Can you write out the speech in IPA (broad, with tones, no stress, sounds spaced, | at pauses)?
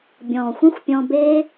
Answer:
bʲ ɔ̃˨ xʷ ə̃˦ xʷ pʲ ɔ̃˧ b e˦